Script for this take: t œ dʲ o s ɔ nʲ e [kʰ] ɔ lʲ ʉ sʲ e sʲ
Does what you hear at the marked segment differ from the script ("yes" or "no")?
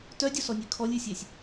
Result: no